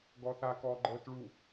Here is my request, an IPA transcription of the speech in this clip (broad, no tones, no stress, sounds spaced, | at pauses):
ɡ ɔ θ a k ɔː ɡ͡ǃ ɤː t ɭ u